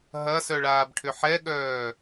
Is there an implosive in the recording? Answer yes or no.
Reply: yes